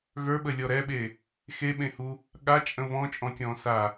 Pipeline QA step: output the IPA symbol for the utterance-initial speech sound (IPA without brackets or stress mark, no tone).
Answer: ɣ